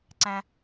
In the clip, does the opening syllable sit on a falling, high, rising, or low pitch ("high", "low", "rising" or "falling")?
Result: high